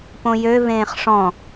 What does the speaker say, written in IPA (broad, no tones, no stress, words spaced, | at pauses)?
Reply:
põjø vẽːχʂɔ̃